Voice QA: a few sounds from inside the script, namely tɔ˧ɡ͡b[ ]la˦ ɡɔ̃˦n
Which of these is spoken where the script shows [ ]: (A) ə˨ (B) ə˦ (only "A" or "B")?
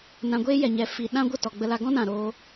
B